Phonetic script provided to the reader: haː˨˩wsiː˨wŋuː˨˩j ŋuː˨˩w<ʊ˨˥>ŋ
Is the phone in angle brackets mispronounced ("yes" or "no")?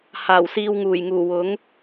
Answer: no